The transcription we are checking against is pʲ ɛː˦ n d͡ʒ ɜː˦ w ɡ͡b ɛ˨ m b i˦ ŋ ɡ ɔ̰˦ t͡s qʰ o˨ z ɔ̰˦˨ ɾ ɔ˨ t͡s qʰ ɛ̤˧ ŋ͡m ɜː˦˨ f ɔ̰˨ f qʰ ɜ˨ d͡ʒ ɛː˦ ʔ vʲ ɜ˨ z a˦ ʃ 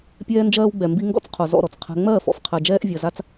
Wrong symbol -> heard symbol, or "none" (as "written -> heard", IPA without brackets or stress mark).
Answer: ʃ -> t͡s